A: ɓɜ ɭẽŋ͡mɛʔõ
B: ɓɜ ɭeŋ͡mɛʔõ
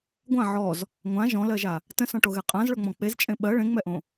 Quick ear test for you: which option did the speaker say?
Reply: A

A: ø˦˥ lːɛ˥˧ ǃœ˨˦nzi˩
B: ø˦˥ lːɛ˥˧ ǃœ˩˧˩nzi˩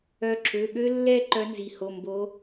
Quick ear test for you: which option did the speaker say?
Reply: A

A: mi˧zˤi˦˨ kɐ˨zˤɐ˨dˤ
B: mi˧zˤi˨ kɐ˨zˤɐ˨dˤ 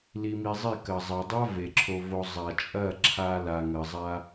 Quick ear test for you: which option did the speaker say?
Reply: A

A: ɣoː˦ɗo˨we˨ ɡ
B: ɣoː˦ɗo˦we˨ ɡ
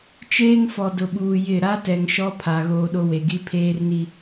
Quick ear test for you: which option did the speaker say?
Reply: B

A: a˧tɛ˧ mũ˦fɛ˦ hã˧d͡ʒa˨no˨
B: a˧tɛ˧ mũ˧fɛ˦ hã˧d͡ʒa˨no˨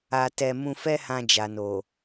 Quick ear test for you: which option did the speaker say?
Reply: B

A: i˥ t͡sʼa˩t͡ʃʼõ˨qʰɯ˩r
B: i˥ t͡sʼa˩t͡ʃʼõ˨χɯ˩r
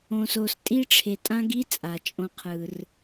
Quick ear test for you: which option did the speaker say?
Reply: A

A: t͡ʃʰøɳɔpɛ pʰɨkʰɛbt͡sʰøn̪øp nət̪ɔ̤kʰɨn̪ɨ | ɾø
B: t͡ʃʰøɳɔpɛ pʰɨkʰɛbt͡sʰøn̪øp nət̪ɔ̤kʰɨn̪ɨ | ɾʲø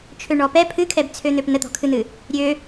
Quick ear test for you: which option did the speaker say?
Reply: B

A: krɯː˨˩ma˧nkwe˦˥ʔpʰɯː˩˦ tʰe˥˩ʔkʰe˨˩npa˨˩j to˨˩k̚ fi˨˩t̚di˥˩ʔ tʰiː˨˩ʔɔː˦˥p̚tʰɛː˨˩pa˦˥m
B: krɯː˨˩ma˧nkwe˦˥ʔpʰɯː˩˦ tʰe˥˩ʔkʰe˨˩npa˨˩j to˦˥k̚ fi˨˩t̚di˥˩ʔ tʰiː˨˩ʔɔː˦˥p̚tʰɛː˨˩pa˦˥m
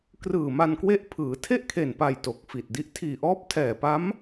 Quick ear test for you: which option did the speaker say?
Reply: A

